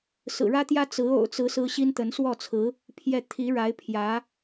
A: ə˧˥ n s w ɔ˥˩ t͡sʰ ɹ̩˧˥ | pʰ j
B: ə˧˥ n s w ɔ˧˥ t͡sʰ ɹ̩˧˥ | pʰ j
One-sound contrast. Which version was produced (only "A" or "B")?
A